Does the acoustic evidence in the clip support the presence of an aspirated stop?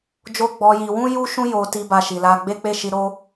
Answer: no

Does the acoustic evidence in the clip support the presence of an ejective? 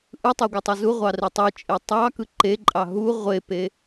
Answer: yes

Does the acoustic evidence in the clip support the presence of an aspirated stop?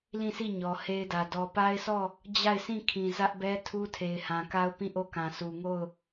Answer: yes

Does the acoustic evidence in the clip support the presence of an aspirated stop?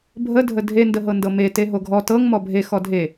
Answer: no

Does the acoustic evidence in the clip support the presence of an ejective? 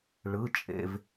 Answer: yes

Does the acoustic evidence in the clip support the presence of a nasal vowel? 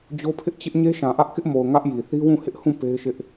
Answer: yes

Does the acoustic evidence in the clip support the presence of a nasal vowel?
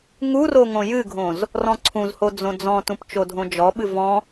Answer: yes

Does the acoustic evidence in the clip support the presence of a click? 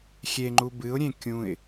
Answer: yes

